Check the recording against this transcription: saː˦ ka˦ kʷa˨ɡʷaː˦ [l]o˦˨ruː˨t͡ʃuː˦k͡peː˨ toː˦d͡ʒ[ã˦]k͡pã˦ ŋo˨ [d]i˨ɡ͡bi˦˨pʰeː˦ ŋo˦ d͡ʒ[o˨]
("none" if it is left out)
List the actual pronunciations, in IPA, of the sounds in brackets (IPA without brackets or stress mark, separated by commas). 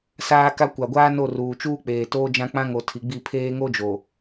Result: n, ã˦, tʰ, o˨